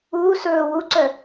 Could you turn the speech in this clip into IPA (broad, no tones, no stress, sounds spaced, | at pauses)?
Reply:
uː s ɵː w u ǀ œ